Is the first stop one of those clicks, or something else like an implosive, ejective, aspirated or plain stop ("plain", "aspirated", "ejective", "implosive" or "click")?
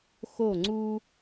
click